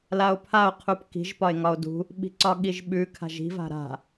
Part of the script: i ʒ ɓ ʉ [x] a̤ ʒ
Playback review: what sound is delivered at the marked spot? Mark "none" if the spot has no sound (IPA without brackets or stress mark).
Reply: kʰ